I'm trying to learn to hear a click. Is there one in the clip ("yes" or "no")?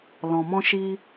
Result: no